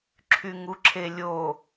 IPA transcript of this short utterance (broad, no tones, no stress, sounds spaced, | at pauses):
ǁʰ y ŋ u ǁʰ e lʲ o